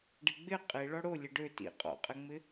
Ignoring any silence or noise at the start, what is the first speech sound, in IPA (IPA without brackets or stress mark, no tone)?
ɖ